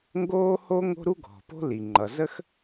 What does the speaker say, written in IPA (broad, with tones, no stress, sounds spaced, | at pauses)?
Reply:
ŋ ɡ oː˥ h o˥ ŋ o̤˥ ɾ u˥ ɡʱ ɔ̤˩ p o̤˥ l i˩ ŋ͡ǃ ʌ˩ z ə˥ x